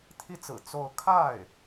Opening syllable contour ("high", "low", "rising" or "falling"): high